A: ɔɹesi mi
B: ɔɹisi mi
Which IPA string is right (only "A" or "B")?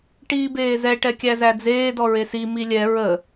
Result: A